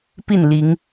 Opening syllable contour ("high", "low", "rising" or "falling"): falling